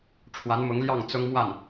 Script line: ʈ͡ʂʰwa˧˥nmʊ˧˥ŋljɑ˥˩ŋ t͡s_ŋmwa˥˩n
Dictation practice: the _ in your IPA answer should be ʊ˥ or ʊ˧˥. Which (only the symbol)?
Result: ʊ˥